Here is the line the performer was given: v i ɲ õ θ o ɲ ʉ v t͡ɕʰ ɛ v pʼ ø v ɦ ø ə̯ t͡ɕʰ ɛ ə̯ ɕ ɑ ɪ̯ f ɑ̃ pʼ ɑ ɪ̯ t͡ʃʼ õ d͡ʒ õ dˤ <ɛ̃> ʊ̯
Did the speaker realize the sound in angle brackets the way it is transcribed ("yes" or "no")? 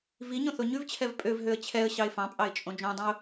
yes